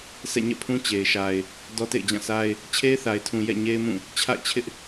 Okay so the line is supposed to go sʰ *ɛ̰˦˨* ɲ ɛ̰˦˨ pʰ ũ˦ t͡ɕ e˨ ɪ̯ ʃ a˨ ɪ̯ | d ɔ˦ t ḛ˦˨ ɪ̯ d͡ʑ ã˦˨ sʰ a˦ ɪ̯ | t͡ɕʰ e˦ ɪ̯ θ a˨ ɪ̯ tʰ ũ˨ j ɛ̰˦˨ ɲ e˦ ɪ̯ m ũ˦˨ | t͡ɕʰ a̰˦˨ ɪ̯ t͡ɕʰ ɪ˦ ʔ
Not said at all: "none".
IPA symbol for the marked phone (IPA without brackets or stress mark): ɛ̰˦˨